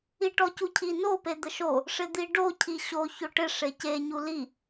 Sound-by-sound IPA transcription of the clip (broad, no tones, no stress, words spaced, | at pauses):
iʈɔcucʰi no ped̪əʃo | ʂɪd̪iɖo cʰiɕo çoʈɪ ʂece ɲuli